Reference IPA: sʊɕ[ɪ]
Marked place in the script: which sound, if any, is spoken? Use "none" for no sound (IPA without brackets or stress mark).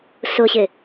ɪ